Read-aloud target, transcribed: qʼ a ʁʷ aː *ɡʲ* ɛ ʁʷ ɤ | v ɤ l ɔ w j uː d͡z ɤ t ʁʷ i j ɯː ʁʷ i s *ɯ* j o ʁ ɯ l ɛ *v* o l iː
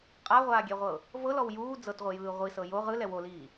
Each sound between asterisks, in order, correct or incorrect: correct, incorrect, incorrect

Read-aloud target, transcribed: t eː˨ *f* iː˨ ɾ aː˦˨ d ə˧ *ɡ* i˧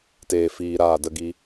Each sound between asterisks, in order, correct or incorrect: correct, correct

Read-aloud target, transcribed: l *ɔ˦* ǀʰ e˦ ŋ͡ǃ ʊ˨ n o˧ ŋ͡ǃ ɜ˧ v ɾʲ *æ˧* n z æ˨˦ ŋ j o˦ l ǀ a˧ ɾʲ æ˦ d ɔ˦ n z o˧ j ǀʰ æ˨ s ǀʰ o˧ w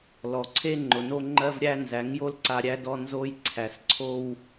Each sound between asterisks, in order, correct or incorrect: incorrect, correct

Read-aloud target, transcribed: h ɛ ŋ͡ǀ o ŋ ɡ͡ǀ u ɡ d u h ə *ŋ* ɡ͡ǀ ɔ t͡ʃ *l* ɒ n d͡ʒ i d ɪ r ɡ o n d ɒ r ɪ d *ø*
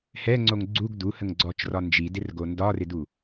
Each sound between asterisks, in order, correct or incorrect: correct, incorrect, incorrect

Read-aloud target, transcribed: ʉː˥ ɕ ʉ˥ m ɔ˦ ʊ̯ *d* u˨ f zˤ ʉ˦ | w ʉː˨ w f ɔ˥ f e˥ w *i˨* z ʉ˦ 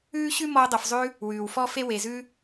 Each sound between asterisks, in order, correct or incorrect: incorrect, incorrect

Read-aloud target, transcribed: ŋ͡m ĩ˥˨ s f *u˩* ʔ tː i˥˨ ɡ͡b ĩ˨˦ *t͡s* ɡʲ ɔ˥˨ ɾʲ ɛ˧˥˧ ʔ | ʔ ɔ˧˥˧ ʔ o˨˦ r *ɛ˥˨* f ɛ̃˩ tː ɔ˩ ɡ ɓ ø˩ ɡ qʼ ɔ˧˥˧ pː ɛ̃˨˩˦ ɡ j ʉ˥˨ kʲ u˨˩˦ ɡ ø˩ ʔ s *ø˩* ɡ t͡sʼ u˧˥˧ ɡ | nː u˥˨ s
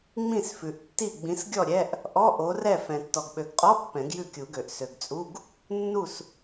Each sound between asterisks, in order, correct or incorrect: incorrect, incorrect, correct, correct

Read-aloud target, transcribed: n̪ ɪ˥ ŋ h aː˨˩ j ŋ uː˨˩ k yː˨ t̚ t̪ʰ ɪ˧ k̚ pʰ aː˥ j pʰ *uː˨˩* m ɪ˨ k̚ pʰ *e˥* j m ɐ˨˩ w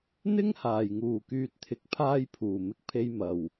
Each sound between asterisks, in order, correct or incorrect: correct, incorrect

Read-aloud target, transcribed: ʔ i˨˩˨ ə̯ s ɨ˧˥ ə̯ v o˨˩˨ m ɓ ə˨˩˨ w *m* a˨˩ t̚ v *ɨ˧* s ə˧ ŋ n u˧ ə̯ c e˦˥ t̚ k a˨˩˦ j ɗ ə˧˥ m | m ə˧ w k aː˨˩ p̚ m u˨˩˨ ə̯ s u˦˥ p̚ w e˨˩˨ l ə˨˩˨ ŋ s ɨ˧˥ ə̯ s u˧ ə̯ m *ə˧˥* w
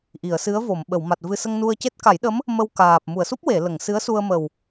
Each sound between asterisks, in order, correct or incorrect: correct, correct, incorrect

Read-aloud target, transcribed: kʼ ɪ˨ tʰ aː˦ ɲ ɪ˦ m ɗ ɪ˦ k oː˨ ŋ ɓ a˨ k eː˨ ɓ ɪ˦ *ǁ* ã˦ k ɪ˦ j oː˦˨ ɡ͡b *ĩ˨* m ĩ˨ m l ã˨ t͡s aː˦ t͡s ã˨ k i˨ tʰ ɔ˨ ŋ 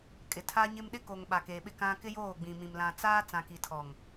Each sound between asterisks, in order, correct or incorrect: incorrect, correct

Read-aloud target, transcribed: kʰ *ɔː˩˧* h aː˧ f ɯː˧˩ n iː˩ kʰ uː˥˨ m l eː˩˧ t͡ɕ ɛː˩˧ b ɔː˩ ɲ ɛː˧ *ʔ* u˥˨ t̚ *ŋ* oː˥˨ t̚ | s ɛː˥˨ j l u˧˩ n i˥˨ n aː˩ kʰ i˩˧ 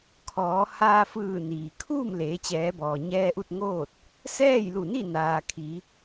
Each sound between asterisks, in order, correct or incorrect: correct, correct, correct

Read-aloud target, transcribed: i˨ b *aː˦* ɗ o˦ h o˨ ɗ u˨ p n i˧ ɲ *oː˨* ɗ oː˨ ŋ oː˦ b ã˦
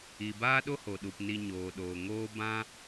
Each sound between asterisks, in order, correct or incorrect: correct, correct

